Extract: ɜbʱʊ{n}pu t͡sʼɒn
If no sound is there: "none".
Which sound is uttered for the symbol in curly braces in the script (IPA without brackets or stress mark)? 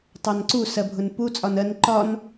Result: n